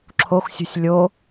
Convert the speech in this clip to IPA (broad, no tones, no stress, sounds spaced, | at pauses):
ǁʰ o x sʲ ṳ sʲ lʲ o